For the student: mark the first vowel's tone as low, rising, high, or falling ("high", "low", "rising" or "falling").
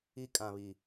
high